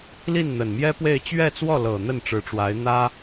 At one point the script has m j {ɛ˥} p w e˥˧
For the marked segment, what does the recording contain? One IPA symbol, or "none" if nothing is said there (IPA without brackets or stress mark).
ɛ˥